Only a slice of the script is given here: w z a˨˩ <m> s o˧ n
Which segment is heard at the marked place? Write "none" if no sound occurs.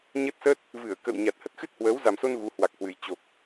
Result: m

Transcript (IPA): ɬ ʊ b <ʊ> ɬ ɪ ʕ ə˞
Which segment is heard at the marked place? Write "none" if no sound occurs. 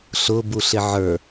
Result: u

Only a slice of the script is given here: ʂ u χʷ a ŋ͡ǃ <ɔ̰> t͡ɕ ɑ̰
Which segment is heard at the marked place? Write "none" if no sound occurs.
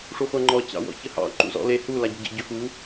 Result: ɔ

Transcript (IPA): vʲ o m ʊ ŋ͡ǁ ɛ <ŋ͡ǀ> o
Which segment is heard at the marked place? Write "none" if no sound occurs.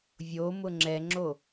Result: ŋ͡ǁ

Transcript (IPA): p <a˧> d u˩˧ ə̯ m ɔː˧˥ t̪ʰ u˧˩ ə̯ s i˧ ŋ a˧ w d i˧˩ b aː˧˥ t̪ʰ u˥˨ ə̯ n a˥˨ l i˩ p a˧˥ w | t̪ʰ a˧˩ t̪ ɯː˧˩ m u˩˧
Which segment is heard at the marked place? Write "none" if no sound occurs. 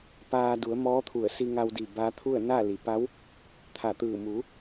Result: aː˧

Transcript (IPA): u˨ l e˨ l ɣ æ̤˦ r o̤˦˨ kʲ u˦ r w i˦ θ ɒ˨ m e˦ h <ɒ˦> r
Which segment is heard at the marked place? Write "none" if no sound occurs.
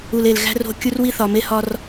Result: ɒ˦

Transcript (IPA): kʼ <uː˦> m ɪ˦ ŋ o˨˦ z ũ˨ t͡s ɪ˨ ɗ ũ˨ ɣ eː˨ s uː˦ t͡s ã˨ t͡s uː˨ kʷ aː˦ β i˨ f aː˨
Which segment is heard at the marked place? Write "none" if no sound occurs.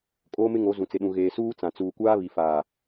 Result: oː˦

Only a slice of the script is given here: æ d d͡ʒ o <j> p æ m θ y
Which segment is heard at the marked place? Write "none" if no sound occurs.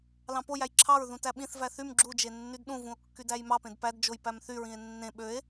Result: j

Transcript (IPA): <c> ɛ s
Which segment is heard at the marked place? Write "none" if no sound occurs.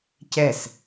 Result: c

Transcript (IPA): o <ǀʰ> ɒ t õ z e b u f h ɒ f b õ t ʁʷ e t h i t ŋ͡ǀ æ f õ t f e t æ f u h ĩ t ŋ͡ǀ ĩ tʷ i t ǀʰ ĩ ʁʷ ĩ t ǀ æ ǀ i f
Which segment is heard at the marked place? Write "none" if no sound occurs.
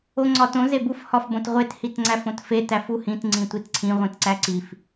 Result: ŋ͡ǀ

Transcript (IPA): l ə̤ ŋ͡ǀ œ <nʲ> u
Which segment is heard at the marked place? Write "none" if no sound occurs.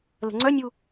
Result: nʲ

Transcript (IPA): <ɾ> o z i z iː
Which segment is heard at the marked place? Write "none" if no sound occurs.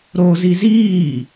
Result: ɾ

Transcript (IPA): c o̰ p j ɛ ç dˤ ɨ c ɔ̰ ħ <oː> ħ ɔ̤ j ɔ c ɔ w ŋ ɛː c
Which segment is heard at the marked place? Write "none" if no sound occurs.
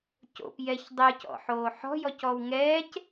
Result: oː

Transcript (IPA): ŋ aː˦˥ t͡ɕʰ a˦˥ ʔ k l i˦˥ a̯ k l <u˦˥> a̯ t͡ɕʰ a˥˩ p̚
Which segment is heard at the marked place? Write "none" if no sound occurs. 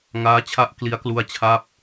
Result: u˦˥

